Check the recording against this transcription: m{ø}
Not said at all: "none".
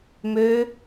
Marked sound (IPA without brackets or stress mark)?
ø